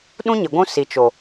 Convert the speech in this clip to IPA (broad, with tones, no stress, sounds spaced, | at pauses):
ɗ ũ˦ ɲ ɪ˨ ɡʷ ũ˦ s i˨ t͡ʃ o˨